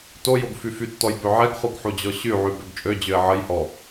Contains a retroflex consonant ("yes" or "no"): no